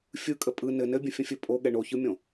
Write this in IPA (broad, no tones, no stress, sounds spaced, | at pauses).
fʲ ɯ kʼ ə pʼ ɯ n ɘ n ɘ bʲ ə̃ fʲ ə̃ fʲ ɘ pʼ o ɠ ɛ ɳ o ç ɯ mʲ õ